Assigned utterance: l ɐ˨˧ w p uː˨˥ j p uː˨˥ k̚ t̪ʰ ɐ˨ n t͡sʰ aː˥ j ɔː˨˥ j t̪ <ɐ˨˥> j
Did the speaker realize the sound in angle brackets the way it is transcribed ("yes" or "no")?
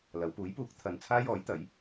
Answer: yes